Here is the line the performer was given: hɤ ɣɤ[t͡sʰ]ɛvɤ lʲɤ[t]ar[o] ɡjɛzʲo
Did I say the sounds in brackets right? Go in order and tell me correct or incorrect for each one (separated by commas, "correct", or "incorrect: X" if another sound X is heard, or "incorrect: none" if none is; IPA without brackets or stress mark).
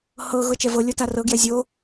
incorrect: t͡ʃ, correct, incorrect: ɤ